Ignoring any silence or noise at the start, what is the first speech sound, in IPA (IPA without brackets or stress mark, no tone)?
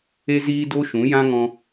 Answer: e